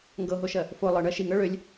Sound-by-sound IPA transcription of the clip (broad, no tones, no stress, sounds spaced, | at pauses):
ŋ ɡ ɤ ɦ o ʃ ɜ | f o lˠ ɤ ɳ ɜ ʃ i ŋ ɤ ɭ ø lʲ